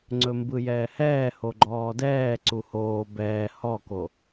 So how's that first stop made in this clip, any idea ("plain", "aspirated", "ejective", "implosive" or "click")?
click